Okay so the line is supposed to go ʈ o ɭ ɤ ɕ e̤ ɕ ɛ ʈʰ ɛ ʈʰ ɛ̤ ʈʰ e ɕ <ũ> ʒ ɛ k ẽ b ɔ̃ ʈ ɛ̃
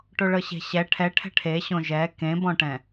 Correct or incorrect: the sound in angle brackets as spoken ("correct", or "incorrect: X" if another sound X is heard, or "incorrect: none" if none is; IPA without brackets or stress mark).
incorrect: õ